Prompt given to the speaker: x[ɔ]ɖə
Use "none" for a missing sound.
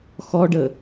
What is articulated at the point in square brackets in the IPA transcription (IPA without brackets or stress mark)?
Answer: ɔ